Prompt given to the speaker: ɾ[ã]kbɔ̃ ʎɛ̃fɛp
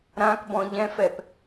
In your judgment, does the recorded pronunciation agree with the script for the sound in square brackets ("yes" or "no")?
yes